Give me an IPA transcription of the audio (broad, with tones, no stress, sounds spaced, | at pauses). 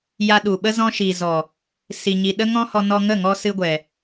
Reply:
j a˧ ɗ u˨ ɓ ə˦ z ɔ̃˧ ʃ i˨ z ɔ˨ | s i˨ ɲ i˨ ɗ ə˦ ŋ ɔ̃˦ h ɔ˧ n ɔ˧ ŋ ə˦˨ ŋ ɔ˧ s ɨ˧ ɡʷ ɛ˨